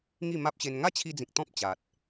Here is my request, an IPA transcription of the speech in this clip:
ŋ i˥˧ m a˦ p̚ ɕ e˧ n ŋ a˦ t͡ɕʰ i˧ d͡z ĩ˨ k̚ t̪ ɔ̃˦ p̚ t͡ɕ a˨ t̚

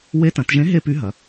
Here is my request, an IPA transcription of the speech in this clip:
w e˧˥ t ɐ̃˩˧ t ʒ ẽ˧˥ ɦ e˥ p y˧˥ ɦ ɐ˩˧

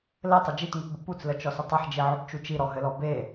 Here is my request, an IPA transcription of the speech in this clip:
l ɘ tˤ ə d͡ʒ i t ŋ u t b ə p u t͡s l ə t͡ʃ ɔ s ə tˤ ɘ ħ d͡ʒ i ʕ ɵ b t͡ʃ u t͡ʃ i ɾ ɔ ɦ ɘ l ɔ b e

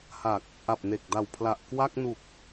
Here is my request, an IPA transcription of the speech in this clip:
h a˨˩ k̚ | ʔ a˨˩ p̚ n e˨˩ k̚ d a˨˩ w pʰ l a˨˩ ʔ k w a˥˩ k̚ n u˨˩ k̚

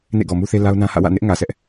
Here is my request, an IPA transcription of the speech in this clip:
n ḛ˦˨ ɡ ɔ˨ m u˦ θ e˦ l a˦ ʊ̯ n ã˦ h ä̰˦˨ w ä̰˦˨ n ɪ˦ ʔ ŋ ä˨ s ɛ˦ ʔ

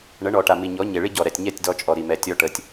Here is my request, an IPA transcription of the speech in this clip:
ɳ ə˨˦ ɳ ɔ˨ ʈ a˨ m i˨ ɲ ɔ˨˦ ɲ e˨ ɭ i˦ ɟ ɔ˨ ɾ ɛ˨ tʲ ɲ ɛ˦˨ tʲ d ɔ˦ t͡ʃʼ ɔ˨ ɾ i˨ m ɛ˨ tʲ ɔ˦ ʈ ə˨ tʲ

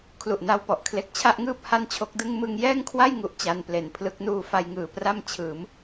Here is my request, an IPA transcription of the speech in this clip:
kʰ l u˨˩ ʔ n a˧ w p ɔ˨˩ ʔ kʰ l e˨˩ k̚ t͡ɕʰ a˥˩ ʔ ŋ ɯː˥˩ p̚ h a˥˩ n t͡ɕʰ o˦˥ k̚ d ɯ˥˩ ŋ m ɯ˧ ŋ j ɛː˥˩ ŋ kʰ w a˥˩ j ŋ u˦˥ ʔ t͡ɕ a˧ n p l e˨˩ n pʰ l ɯ˦˥ k̚ n uː˧ f a˧ j ŋ ɯː˨˩ p r a˥˩ m t͡ɕʰ ɯː˩˦ m

